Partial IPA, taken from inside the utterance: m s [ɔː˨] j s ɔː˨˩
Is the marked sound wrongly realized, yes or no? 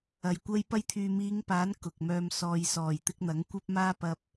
no